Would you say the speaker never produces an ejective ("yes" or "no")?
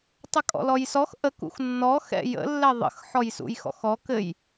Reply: no